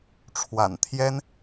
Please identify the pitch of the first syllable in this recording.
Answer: low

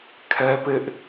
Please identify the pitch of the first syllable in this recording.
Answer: high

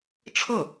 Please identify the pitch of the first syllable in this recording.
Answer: falling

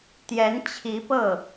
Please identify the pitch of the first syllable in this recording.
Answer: rising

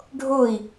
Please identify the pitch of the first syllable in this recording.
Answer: falling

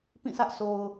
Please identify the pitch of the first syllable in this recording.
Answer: falling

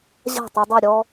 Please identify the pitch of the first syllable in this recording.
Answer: falling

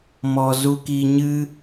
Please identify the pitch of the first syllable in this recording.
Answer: low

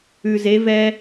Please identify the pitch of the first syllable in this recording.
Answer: low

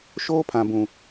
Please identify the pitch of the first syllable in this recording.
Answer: high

